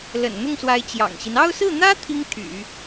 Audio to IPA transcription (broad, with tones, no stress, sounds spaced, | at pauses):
l ə̰˨˩ n n̪ ʊ˥˩ ŋ s w a˧˥ ɪ̯ t͡ɕ j ɑ̰˨˩ ŋ ɕ i˦ n ɑ˥˧ ʊ̯ s ɹ̩˥˩ n̪ ä˥ t̪ʰ i˥ ŋ t̪ʰ y̰˨˩˦